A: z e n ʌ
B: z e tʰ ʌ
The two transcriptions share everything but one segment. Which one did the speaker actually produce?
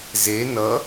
A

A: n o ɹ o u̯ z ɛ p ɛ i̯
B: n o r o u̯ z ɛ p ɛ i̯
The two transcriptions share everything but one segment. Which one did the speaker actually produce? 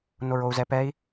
A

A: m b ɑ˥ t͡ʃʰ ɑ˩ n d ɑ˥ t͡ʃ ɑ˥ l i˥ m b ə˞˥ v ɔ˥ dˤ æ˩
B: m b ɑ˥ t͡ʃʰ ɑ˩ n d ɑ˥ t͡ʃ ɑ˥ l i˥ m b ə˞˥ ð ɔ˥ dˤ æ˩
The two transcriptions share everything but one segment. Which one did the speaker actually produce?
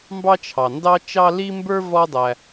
A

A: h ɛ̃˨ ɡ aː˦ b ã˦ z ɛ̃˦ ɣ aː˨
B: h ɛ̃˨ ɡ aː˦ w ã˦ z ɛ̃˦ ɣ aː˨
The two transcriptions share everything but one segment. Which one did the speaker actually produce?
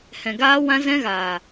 B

